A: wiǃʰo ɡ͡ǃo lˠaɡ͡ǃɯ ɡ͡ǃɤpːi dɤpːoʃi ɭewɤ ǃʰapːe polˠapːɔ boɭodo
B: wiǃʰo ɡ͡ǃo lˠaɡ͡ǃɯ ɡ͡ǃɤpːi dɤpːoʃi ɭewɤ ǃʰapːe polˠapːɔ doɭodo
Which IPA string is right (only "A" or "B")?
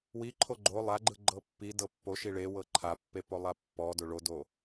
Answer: B